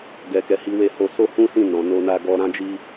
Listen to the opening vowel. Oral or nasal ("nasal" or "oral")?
oral